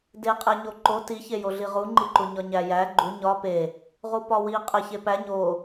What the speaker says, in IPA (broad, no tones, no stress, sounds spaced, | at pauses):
d e qʼ æ ɲ o ǃ o t i ç e j o ɮ i ʁ u ŋ͡ǃ i ǃ u ɲ ɒ ɲ æ j æ ɡ͡ǃ u ɲ ɒ p e | ʁ u p ɒ w i qʼ æ ç e p æ ɲ o